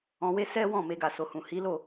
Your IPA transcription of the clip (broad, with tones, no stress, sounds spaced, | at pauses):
ɔ̃˨ w e˧ s ɛ˦ w ɔ̃˦˨ m e˧ ɡ a˨ s o˨ h ũ˨ h i˨˦ l o˦˨